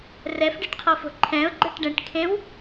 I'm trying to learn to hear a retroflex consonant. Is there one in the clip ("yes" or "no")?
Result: yes